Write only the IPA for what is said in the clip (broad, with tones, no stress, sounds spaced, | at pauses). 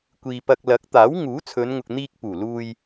kʷ iː˨ p ɐ˧ k̚ l ɐ˨˥ k̚ t̪ aː˨˥ w ŋ uː˨˥ t͡sʰ ɵ˨˧ n ŋ ʊ˨ k̚ n̪ iː˧ k̚ p uː˨˩ l uː˧ j